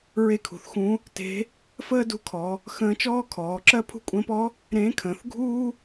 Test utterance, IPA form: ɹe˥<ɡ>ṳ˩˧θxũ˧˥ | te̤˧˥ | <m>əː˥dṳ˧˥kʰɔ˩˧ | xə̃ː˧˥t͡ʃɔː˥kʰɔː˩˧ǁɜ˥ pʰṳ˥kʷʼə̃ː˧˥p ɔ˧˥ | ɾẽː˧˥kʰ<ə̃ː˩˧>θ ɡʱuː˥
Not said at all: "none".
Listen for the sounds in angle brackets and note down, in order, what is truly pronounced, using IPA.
kʰ, f, ə̃ː˩˧

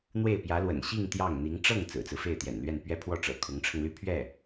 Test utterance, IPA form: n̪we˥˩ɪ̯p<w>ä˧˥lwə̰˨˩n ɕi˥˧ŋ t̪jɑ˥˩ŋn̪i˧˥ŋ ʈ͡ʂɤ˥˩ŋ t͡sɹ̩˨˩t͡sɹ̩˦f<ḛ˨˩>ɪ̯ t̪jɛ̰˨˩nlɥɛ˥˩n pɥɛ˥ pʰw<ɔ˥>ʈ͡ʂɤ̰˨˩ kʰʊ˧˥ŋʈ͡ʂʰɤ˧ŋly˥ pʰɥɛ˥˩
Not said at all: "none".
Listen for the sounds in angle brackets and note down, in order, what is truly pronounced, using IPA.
j, e˥˩, ɔ˥˩

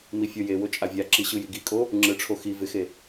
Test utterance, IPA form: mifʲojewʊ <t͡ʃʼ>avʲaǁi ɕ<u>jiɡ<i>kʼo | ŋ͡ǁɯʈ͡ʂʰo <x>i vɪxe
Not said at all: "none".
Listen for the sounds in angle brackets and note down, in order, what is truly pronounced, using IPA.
t͡ʃʼ, ɯ, i, x

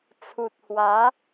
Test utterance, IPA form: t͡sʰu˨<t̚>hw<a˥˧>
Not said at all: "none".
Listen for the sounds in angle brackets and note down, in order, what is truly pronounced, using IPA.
t̚, a˨˦

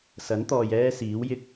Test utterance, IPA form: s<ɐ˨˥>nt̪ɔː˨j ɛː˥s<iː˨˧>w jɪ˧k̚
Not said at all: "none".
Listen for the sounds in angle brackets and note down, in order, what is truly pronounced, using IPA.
ɐ˨˥, iː˨˥

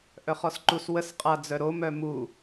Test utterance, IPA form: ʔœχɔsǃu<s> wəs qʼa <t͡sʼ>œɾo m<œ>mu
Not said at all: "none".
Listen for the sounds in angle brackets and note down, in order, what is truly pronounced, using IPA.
s, d͡z, œ

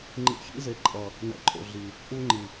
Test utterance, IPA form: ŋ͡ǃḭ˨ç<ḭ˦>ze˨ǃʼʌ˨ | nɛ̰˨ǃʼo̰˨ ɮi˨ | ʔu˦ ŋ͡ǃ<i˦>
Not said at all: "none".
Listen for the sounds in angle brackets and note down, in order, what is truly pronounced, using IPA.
ḭ˦, i˨

